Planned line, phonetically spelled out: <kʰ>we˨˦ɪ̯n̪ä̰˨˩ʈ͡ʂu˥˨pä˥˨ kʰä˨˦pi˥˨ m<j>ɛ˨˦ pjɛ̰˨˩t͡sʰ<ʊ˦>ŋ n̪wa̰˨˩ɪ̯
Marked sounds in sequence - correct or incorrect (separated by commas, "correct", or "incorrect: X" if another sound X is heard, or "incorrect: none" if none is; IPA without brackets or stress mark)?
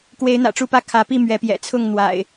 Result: incorrect: k, incorrect: ɥ, incorrect: ʊ˥˨